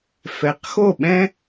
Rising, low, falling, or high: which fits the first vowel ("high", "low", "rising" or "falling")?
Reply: rising